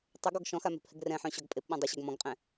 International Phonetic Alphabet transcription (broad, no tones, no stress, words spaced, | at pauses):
tˤeɡɔɡ ʃɔ̃xa mɛ̤phɛɡrɛ̃ħœ̃ ɕɔɡpʼepɓɔ̃ dˤəɕœɡ mɔ̃ɡqʼɛ̃